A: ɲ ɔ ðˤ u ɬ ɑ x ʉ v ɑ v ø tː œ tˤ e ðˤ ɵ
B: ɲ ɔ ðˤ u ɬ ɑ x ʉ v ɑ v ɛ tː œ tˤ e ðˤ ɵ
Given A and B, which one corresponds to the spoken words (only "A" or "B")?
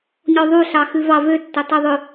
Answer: A